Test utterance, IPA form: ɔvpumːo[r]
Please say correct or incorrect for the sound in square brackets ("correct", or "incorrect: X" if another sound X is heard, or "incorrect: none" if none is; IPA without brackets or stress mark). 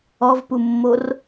correct